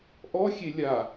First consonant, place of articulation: glottal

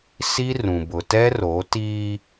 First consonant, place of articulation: alveolar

